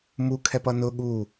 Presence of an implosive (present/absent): present